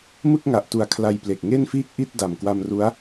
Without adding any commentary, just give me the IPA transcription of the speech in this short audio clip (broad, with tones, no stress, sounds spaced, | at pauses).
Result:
m ɯ˥˩ k̚ ŋ a˨˩ ʔ t u˨˩ a̯ kʰ l a˧ j p l e˨˩ k̚ ŋ e˥˩ n f iː˥˩ k̚ ʔ i˥˩ t̚ d a˨˩ m k w a˧ m r u˦˥ a̯